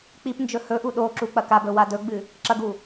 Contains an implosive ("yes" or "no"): yes